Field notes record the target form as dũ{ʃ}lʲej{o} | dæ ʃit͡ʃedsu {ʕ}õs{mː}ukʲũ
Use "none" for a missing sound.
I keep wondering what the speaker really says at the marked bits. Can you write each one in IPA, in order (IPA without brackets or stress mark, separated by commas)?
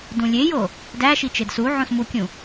none, o, ʕ, m